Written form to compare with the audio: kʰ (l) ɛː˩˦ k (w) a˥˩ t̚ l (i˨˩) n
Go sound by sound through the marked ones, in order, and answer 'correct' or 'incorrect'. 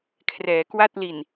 incorrect: r, correct, correct

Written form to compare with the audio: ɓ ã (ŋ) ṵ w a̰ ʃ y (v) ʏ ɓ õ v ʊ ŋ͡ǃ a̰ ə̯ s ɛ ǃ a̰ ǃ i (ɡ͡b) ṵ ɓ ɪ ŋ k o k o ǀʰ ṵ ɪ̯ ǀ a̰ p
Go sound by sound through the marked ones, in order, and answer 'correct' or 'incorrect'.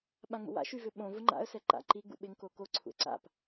incorrect: ŋ͡m, correct, correct

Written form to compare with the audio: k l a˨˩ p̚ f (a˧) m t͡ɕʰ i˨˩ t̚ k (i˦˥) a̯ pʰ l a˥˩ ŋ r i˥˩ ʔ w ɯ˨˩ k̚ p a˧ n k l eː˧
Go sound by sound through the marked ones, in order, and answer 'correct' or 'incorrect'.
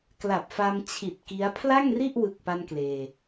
correct, correct

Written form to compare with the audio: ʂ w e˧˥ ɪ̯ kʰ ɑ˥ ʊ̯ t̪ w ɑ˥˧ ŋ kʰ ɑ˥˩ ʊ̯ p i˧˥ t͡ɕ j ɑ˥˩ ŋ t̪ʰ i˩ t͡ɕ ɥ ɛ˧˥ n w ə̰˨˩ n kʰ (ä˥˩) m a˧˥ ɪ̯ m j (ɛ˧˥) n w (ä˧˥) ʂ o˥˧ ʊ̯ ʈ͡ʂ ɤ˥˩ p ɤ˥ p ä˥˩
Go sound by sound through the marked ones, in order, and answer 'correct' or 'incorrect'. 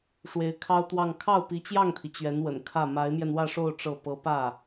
correct, incorrect: ɛ˧, incorrect: ä˥˧

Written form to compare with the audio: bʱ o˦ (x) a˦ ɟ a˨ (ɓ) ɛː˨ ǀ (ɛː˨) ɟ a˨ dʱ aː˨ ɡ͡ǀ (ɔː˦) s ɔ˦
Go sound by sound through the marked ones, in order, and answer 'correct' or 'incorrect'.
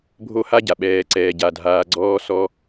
incorrect: h, correct, correct, correct

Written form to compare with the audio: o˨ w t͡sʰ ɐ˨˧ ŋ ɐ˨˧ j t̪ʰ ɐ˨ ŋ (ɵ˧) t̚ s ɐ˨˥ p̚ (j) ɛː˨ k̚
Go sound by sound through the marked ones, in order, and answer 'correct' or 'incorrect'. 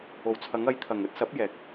incorrect: ɵ˨˥, correct

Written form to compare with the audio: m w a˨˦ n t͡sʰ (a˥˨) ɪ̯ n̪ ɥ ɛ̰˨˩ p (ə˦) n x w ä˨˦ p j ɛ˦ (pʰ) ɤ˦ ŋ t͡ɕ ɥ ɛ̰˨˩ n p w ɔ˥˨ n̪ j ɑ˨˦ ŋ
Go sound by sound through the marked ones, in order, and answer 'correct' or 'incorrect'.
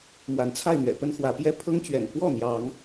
correct, correct, correct

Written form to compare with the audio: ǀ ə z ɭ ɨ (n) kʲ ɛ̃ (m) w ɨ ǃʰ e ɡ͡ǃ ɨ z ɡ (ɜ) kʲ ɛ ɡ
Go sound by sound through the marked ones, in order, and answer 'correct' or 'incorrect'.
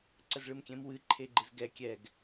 incorrect: m, correct, incorrect: ɛ

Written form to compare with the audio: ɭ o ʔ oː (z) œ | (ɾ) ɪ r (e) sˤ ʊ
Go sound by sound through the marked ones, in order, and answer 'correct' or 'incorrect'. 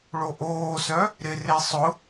incorrect: s, correct, correct

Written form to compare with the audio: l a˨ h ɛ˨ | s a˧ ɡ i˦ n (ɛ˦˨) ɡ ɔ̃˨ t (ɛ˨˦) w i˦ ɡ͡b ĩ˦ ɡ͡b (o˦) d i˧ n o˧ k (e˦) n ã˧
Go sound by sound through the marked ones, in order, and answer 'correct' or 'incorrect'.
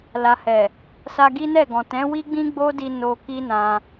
correct, incorrect: ɛ̃˨˦, correct, incorrect: i˦

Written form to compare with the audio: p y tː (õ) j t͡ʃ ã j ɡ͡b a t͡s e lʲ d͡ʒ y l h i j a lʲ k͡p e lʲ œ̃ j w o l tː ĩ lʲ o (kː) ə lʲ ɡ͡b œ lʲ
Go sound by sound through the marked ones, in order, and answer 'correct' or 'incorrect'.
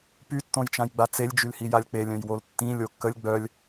correct, correct

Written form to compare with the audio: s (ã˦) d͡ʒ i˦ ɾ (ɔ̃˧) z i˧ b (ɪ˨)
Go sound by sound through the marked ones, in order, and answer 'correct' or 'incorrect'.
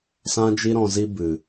correct, correct, incorrect: ɨ˨

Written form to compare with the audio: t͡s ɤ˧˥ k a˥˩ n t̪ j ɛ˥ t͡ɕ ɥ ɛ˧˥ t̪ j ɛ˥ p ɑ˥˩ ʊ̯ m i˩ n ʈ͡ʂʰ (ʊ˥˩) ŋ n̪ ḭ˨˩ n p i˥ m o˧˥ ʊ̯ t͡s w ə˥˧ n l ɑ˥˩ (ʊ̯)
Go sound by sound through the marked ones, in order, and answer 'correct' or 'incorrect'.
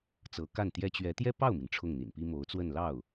correct, correct

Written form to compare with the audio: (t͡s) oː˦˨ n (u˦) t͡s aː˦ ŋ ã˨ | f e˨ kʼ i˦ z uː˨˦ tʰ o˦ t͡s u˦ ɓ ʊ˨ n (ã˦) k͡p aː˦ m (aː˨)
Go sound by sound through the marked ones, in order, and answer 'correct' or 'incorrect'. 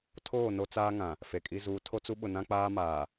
incorrect: tʰ, incorrect: o˦, correct, correct

